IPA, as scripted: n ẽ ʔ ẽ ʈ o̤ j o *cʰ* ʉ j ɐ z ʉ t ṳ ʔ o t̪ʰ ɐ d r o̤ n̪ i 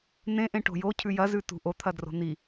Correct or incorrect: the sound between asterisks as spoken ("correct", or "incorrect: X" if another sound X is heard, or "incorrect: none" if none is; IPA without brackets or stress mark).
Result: correct